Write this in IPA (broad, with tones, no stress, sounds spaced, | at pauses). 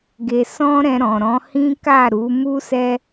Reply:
ɡ e˧ s ɔ̃˦ ɾ ɛ̃˧ ɾ ɔ̃˨ ɾ ɔ̃˨˦ h ĩ˦ k a˦˨ ɾ u˨˦ m u˦ s ɛ˦